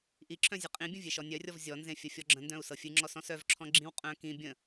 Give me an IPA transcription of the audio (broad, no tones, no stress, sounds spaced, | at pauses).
ʔ i ǁʰ œ̃ zʲ ɨ qʼ ĩ bʲ ə̃ vʲ e ʃ ɔ nʲ œ rʲ ɔ v zʲ ɔ n z ẽ fʲ ə fʲ ɔ ɡ͡ǁ ə̃ n d œ̃ u̯ s ɤ fʲ ɨ ŋ͡ǁ ɔ s ɔ̃ s œ v ǁʰ ɔ̃ ɡ͡ǁ ĩ w qʼ œ̃ k ĩ bʲ ə̃